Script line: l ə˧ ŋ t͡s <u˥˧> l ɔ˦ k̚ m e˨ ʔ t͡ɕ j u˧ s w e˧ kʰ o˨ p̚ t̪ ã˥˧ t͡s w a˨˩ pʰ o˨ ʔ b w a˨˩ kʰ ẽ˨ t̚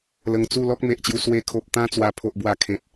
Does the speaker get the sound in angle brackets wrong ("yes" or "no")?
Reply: no